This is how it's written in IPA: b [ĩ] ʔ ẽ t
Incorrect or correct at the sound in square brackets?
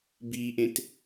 incorrect: i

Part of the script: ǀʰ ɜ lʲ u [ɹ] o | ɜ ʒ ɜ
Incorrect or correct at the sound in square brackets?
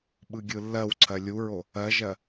correct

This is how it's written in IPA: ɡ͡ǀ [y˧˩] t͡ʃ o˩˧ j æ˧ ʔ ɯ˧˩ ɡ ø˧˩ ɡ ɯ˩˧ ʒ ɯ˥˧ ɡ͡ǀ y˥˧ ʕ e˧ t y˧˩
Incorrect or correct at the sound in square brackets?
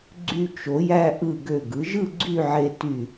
incorrect: y˧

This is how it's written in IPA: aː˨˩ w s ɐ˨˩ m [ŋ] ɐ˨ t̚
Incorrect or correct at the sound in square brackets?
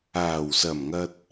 correct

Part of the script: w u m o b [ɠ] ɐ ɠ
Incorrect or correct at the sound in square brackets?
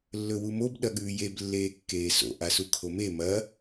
incorrect: ɗ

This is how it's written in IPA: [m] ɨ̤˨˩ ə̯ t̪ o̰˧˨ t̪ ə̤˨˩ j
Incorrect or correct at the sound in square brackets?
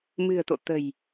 correct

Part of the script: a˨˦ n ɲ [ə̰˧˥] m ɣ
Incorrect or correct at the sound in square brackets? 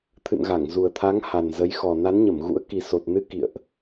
incorrect: ə˧˩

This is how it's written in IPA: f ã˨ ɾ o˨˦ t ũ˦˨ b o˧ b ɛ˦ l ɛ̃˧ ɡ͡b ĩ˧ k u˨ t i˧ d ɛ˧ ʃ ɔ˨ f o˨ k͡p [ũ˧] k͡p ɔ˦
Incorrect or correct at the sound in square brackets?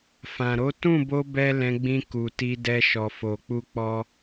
incorrect: u˧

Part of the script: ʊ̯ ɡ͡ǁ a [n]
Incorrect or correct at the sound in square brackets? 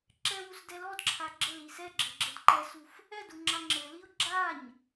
incorrect: ɲ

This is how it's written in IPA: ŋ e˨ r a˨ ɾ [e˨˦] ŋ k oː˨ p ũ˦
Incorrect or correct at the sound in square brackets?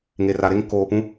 incorrect: e˦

